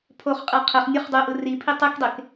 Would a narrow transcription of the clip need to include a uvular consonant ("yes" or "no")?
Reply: yes